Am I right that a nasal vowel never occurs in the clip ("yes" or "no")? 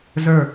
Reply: yes